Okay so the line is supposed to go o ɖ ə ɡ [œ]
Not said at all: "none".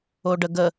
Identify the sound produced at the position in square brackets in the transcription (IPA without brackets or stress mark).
ə